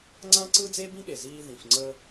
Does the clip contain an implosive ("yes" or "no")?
yes